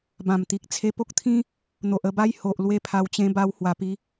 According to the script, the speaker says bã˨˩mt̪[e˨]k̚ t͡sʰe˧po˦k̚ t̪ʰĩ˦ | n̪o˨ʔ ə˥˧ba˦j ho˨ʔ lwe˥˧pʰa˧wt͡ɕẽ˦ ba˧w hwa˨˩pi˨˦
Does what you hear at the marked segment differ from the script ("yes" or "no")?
yes